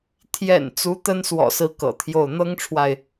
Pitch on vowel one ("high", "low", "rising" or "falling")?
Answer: low